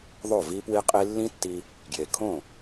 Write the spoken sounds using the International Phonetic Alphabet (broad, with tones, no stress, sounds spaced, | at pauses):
ðˤ o˦˨ v i˦ p w i˦ qʼ i˦ lː ĩ˦ tː i˧ | ɡ j e˨ kʰ õ˦˨